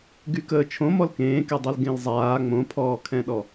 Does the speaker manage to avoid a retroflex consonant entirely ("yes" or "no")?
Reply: yes